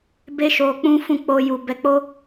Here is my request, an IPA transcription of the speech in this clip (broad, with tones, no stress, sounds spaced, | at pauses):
b e˧ ʃ o˨ k͡p ũ˧ f ũ˦ k͡p o˧ j u˨ b ɛ˨˦ k͡p o˦